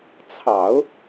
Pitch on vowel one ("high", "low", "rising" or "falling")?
low